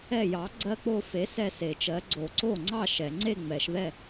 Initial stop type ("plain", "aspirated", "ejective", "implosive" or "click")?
click